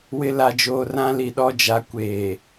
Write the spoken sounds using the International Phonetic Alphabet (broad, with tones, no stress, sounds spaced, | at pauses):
w ɪ˦ l a˨ d͡ʒ oː˨ r ã˦ l i˨ ɗ ɔ˦ d͡ʒ a˨˦ kʷ eː˨